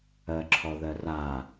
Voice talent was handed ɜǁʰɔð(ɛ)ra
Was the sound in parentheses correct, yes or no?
no